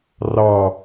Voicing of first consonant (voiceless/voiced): voiced